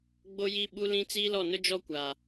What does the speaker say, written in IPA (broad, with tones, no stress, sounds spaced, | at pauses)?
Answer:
ɡ͡b o˦ j i˦ ɓ u˦ l ĩ˦ t͡s iː˦ l ɔ˦˨ n ʊ˦ d͡ʒ ɔ˦ kʷ a˨